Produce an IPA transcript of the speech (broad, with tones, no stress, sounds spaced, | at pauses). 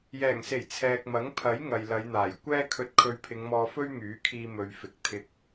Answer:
j ɛː˨˩ ŋ s e˨˩ j t͡sʰ ɛː˨ k̚ m ɐ˨˥ ŋ pʰ ɐ˨˥ j ŋ ɐ˨ j l ɐ˨˧ j n̪ aː˨˩ j kʷ ɛː˥ kʰ ɵ˧ t̚ kʰ ɵ˧ ɥ pʰ ɪ˨˧ ŋ m ɔː˧ f ɵ˥ ɥ ŋ yː˨˥ kʰ iː˧ m ɵ˨ ɥ f ɪ˨ k̚ t̪ʰ ɪ˧ k̚